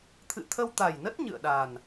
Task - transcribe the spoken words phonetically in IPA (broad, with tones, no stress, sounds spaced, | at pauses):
t̪ʰ ɨ̰˧˨ t̪ʰ ə˧ w t̪ a˨˩ j n ə˦˥ t̚ ɲ ɨ̰˧˨ ə̯ ɗ a˨˩ n